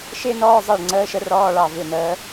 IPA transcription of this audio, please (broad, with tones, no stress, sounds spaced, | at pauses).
ʃ ɪː˥ n ɔː˧˥˧ zˤ ɘː˦˨ ɭ ŋ͡ǀ əː˧˥˧ ʃ ə˥ r ɔː˧˥˧ ɭ ɑ˦˨ v ɪ˦˨ n əː˧˥